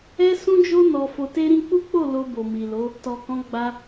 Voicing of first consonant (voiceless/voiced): voiceless